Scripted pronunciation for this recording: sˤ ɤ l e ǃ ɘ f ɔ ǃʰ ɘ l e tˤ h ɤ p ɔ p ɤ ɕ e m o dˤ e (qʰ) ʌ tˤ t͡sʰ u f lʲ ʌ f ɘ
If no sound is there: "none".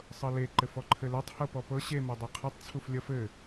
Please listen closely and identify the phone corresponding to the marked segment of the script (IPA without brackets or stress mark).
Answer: qʰ